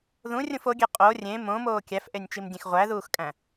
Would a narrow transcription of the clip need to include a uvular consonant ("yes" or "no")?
yes